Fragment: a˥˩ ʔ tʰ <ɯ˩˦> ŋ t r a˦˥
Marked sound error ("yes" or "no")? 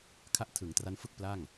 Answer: no